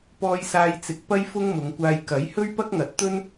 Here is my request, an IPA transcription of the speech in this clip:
p ɔː˧ j s aː˧ j t͡s ɪ˨˥ k̚ p ɐ˥ j f ʊ˥ ŋ m ʊ˨˧ ŋ kʷ aː˧ j k ɐ˨˥ j h ɵ˥ ɥ p ɐ˥ k̚ ŋ ɐ˨˥ t̚ t̪ ɵ˥ n

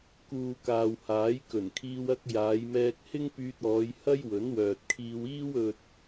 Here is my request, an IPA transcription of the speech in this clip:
k uː˨ k aː˨ w h aː˨˥ j k ɵ˨˩ n kʰ iː˧ w ɐ˧ k̚ j aː˨˧ j m ɛː˧ k̚ h ɪ˥ ŋ p yː˧ t̚ ɔː˨˧ j h ɐ˥ j w ɵ˨˥ n w œː˨ t̚ kʰ iː˧ w iː˥ w ɵ˧ t̚

